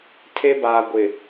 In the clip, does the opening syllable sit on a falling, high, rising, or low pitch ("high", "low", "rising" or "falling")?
high